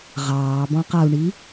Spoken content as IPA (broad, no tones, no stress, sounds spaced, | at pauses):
ʁ ɑː b ɔ̃ q a u̯ ɳ i